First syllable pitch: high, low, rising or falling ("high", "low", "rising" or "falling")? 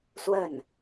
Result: falling